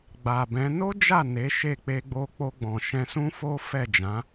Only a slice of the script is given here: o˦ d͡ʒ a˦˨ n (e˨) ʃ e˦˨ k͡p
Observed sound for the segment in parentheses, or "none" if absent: e˨˦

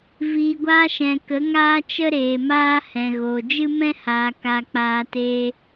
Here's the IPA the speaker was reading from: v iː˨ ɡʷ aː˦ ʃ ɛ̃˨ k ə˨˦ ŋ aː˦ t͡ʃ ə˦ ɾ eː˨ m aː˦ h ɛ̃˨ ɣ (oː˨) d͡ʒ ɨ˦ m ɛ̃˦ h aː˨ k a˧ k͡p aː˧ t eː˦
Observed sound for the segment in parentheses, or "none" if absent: oː˨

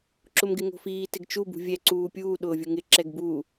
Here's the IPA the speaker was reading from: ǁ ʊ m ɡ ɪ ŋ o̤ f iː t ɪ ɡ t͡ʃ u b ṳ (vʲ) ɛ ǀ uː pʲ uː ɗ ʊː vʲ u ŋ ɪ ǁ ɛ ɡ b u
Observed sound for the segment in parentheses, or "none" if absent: vʲ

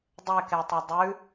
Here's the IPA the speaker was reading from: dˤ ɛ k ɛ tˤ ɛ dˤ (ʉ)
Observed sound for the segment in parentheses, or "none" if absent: ʉ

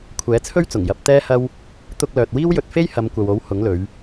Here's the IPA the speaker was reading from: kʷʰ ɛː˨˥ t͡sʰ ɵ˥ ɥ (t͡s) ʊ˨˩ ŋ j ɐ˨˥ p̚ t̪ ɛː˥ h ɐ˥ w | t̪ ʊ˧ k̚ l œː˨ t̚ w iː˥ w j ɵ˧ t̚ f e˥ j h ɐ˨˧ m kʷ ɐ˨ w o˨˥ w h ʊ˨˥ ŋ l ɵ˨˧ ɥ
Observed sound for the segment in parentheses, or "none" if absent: t͡s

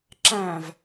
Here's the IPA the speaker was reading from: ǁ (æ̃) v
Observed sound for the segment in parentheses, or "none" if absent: æ̃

